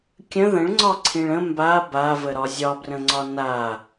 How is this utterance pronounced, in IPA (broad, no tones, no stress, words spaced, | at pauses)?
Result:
kʲə̃ ðə̃ɭŋ͡ǀɒ ǀʰĩɭə̃ mba bavə ɾɒzʲɒbrə̃ŋ͡ǀɒ na